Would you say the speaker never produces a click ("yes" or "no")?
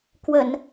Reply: yes